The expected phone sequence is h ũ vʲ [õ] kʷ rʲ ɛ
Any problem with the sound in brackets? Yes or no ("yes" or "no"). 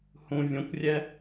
no